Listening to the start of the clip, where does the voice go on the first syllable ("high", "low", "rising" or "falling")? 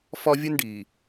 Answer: high